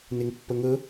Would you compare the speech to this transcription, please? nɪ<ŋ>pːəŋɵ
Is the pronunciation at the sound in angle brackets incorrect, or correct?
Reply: correct